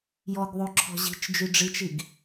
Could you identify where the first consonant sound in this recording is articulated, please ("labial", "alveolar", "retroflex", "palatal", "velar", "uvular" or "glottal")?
palatal